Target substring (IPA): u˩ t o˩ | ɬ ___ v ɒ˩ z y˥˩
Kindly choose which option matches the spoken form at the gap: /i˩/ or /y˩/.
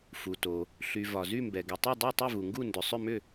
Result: y˩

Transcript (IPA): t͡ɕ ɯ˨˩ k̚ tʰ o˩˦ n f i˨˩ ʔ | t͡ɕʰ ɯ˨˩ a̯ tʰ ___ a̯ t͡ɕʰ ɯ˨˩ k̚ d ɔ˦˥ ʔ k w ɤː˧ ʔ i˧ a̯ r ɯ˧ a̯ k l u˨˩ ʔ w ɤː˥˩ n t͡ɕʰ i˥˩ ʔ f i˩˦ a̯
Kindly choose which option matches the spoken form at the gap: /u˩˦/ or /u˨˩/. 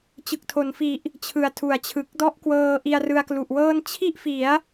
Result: u˩˦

